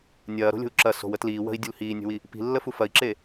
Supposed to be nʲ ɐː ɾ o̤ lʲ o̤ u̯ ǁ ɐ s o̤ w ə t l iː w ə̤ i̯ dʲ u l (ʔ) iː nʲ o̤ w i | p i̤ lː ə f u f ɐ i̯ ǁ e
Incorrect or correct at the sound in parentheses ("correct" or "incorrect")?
incorrect